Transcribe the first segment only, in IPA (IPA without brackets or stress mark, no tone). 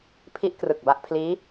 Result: pʰ